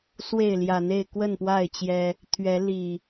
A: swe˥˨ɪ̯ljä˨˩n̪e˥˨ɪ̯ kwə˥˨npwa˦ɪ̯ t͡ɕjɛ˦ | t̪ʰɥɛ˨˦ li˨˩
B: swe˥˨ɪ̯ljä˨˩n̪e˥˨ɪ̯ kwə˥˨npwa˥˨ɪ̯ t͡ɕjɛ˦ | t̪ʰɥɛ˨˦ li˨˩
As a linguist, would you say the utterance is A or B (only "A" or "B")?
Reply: B